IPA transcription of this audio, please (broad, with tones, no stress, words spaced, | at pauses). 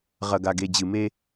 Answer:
ʁɐ˨ɡa˨ɡe˨ d͡ʑɨ˨me˦